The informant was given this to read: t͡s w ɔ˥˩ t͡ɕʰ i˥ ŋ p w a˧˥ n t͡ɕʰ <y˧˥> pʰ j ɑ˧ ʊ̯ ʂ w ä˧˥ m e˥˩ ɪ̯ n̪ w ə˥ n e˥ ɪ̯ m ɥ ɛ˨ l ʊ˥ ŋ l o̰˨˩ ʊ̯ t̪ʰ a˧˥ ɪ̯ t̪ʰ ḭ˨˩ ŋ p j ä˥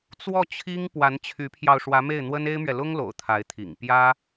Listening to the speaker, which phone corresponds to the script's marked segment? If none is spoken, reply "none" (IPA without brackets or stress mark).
y˧˥